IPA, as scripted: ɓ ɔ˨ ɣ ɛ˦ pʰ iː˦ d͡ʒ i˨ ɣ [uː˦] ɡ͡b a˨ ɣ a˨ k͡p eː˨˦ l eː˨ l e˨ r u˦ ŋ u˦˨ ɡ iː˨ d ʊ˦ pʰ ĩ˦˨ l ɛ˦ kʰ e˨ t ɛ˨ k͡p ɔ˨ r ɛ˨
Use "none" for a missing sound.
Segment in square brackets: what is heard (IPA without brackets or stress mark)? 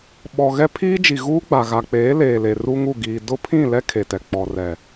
uː˦